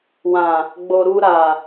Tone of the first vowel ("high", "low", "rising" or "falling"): low